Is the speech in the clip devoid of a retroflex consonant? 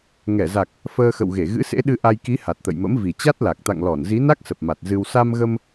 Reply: yes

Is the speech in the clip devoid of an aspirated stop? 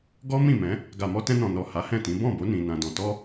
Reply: yes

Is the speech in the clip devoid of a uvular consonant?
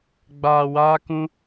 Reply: yes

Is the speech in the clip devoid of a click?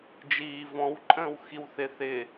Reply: no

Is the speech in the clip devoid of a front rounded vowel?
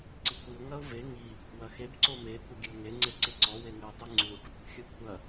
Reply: yes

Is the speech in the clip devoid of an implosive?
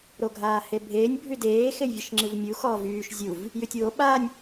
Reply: no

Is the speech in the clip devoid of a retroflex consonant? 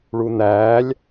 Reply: no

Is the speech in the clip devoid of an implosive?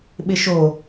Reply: no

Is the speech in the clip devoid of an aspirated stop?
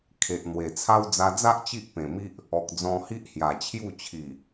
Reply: no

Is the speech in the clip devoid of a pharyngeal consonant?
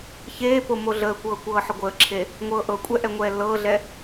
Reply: no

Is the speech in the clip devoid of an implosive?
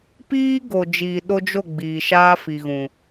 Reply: no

